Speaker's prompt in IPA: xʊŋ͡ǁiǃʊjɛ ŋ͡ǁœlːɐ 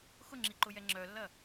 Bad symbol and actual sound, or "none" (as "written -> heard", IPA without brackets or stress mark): none